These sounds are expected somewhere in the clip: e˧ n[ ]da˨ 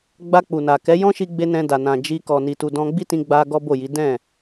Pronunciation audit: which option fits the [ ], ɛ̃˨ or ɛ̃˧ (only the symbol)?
ɛ̃˧